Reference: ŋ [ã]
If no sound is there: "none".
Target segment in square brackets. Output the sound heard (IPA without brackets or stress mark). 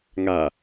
a